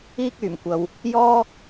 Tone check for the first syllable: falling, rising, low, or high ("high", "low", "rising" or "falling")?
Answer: high